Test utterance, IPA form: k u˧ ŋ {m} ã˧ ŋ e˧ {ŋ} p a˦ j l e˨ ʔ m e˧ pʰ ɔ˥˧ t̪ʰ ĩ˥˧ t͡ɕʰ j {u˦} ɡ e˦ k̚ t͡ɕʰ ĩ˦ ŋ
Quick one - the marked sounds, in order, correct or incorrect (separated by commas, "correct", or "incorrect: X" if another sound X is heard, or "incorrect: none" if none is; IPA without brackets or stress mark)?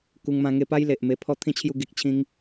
correct, incorrect: none, incorrect: u˥˧